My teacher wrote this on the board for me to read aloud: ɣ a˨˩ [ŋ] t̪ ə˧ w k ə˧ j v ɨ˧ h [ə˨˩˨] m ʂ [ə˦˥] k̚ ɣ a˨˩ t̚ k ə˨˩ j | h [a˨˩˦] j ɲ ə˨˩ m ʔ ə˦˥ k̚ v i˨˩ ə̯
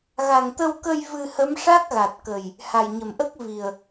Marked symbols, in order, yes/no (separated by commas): yes, no, no, no